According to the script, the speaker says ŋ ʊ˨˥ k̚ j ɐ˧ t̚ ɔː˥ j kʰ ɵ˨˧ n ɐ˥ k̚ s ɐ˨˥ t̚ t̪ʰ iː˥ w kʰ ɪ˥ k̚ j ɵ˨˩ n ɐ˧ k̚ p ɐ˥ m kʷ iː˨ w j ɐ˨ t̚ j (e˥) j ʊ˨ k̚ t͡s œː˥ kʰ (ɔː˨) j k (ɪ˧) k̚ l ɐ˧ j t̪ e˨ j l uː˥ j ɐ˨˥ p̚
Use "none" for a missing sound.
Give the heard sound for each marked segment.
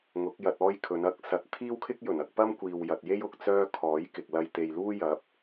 e˥, ɔː˨˥, ɪ˨

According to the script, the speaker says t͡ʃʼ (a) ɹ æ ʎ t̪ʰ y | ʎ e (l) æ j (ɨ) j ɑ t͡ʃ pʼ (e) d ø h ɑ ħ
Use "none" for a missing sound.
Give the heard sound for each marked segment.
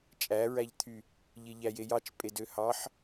æ, ʎ, e, e

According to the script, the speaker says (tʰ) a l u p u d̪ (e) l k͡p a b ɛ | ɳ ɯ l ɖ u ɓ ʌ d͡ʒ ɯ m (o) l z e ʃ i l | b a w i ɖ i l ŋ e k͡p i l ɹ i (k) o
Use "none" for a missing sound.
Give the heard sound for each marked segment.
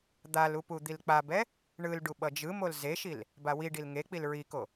d̪, i, o, k

